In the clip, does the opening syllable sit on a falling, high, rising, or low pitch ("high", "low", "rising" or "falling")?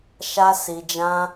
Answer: high